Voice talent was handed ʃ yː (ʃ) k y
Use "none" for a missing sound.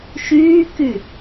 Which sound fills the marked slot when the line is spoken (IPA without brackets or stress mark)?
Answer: none